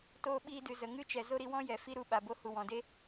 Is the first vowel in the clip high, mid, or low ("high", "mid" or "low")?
mid